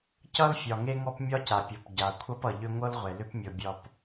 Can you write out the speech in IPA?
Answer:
c ʌ˦ l fʲ ɒ˨ ŋ e˦ ŋ ɔ˦ p mʲ ɒ˦ c a˨ pʲ ɔ˨ p ɟ a˨ kʷʰ ʌ˦ p ʌ˨ ʎ ʏ˦ ŋʷ ɤ˦ l ʁʷ e˨ l ʏ˦ p mʲ ɤ˨ bʲ ɒ˨ p

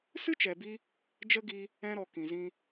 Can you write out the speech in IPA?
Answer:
s ɨ˦ t͡ʃ ɛ˨ b i˧ | d͡ʒ ə˦ ɡ i˧ | ɛ̃˧ ɾ ɔ˨ k ĩ˨ z ĩ˧

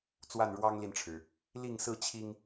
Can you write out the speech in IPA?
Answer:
t͡s w a˥˨ n ɻ w ɑ˦ ŋ l i˨ n ʈ͡ʂʰ ɻ̩˩ | l i˥˨ ŋ s ɹ̩˥˨ t͡ɕʰ i˦ ŋ

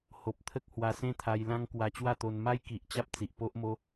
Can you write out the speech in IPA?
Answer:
h o˨ p̚ t̪ʰ ə˦ k̚ h w a˧ s ẽ˦ t̪ʰ a˧ j l ã˦ ŋ k w a˧ t͡ɕ w a˥˧ t̪ o˧ n m a˦ j k i˨ ʔ t͡ɕ a˦ p̚ t͡s i˨ ʔ p o˦ ʔ m o˦

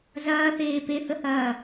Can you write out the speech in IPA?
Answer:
z ɐː θ eː p e θ ə h ɐː

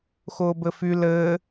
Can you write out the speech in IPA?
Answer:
x ʊː b ɘ f y l ɘː

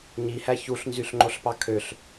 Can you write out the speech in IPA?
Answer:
ɲ i h æ ç u ɬ n z y ɬ ŋ͡ǃ o ɬ p ɑ kʰ ø ɬ

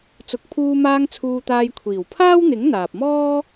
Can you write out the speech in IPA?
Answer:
t͡s ʊ˨˥ k̚ pʰ uː˧ m aː˧ ŋ t͡sʰ uː˧ t̪ aː˧ j kʷʰ iː˨˩ w pʰ aː˥ w n̪ ɪ˨˥ ŋ n̪ aː˨ p̚ m ɔː˥

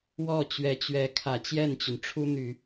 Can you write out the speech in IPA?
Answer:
w ɔ˥˩ t͡ɕ ɥ ɛ˧˥ t͡ɕ ɥ ɛ˧˥ kʰ ä˨˩ t͡ɕ j ɛ˥˩ n t͡ɕ y˩ n ʈ͡ʂʰ u˥ n̪ y˨˩˦

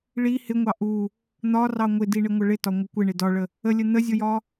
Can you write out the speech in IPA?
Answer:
ɭ i h ɪ ŋʷ ɑ ʔ u | n̪ ɒ r ɑ ŋʷ ɪ d i ɳ ɪ ŋʷ ə ɭ ɪ t ɒ ŋʷ ɪ kʷ ɪ ɳ ɪ d ɒ ɭ ə | ə lʲ ə n̪ ə zʲ ʊ j ɒ

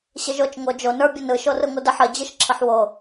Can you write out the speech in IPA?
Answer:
ɕ ɘ ʒ o t͡ʃ ŋ o d͡ʒ o n ə˞ bʲ ə n ɯ ʃ o r ɯ ŋʷ ɯ d ə ħ ə d͡ʑ ɯ ʃ ǁʰ ə ħ w o

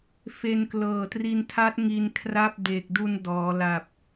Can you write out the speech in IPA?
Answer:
f e˧ n k l ɤː˨˩ t r i˧ n tʰ a˦˥ t̚ ŋ i˧ n kʰ r a˥˩ p̚ d e˨˩ k̚ d u˧ n d ɔː˩˦ l a˨˩ p̚

